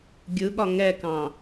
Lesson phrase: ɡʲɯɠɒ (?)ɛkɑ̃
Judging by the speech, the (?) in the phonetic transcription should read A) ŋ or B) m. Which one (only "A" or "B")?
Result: A